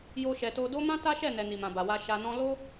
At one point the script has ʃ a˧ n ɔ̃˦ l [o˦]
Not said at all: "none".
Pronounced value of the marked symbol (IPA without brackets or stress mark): o˦